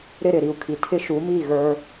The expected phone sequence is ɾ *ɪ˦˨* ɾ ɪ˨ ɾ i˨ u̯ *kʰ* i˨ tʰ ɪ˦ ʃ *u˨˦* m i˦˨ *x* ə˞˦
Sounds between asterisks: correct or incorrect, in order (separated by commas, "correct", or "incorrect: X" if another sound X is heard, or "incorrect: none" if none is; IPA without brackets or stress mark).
correct, correct, correct, incorrect: ɣ